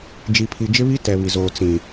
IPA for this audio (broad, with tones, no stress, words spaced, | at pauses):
d͡ʒi˨pʰi˨d͡ʒɪ˦βi˦ tɛ˨βi˨zoː˨ t͡sĩ˨